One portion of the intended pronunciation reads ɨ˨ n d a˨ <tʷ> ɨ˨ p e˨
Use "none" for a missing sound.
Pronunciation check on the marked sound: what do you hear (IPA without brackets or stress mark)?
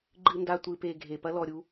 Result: tʷ